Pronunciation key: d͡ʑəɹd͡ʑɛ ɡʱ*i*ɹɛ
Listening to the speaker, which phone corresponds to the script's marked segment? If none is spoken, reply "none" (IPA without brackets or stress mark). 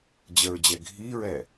i